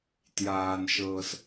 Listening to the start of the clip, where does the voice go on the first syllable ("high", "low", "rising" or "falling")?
low